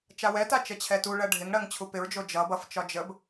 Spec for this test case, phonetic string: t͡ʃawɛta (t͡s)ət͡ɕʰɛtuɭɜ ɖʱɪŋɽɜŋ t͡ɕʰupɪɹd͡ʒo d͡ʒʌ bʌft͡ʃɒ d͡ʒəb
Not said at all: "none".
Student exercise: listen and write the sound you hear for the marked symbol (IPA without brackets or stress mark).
t͡ʃ